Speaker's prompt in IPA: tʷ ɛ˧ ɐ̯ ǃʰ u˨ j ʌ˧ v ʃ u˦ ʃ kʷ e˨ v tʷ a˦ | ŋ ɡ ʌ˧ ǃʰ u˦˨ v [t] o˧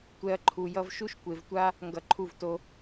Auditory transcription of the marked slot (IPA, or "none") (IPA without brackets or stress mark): t